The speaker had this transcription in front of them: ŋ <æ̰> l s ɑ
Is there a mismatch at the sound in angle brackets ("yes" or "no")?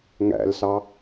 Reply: no